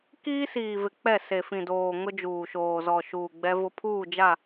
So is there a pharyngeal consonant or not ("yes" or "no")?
no